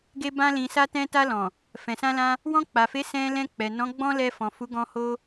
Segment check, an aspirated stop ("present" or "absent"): absent